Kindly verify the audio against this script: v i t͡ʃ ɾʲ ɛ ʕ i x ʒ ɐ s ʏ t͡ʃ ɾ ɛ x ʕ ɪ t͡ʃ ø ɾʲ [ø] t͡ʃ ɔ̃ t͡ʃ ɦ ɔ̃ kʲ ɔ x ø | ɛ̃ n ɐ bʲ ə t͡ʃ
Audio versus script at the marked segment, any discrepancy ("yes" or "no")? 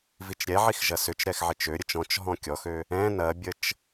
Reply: yes